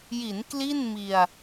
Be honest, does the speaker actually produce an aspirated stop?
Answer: no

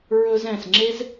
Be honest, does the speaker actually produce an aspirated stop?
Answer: no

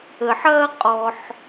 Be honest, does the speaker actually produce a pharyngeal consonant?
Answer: yes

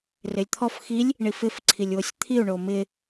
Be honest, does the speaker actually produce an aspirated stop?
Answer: yes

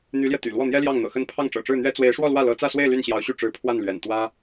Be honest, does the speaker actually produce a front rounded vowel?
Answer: yes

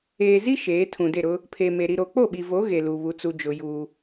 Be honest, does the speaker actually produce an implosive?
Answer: yes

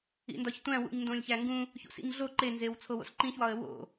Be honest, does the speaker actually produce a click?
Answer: yes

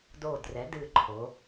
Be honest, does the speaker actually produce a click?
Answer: yes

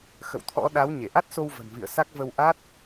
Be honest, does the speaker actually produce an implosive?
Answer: yes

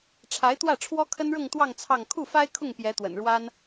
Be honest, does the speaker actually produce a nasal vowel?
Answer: no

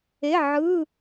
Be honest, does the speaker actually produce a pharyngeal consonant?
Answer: yes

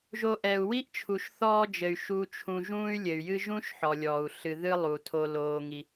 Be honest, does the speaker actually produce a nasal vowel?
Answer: yes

